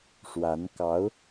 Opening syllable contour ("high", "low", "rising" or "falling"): rising